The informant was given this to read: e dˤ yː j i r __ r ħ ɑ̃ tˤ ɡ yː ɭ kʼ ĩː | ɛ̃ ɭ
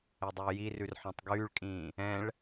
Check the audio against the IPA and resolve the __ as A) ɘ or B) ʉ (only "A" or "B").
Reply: B